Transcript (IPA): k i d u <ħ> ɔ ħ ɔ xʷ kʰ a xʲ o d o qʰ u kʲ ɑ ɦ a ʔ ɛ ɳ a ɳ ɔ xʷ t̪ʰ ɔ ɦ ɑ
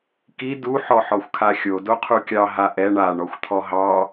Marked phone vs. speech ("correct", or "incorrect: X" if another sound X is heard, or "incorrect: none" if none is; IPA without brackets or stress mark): correct